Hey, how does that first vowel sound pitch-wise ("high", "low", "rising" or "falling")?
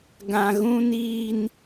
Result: low